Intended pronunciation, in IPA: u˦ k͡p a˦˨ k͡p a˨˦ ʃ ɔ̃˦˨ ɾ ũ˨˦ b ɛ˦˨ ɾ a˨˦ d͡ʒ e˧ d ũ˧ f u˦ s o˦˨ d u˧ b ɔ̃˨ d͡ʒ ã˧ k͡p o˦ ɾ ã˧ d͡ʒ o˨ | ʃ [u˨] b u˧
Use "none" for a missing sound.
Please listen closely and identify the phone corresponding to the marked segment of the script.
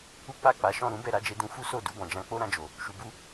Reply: u˨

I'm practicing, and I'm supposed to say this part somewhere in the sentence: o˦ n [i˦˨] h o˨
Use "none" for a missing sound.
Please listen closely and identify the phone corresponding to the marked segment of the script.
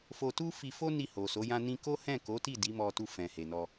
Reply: i˦˨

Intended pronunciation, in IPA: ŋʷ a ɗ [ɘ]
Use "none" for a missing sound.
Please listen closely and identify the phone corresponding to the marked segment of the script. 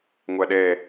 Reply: ɛ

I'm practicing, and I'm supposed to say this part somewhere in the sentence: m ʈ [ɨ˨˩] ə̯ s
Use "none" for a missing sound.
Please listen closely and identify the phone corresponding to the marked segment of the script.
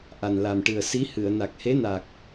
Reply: ɨ˨˩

